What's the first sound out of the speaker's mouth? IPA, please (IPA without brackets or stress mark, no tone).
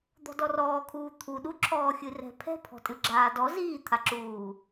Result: d̪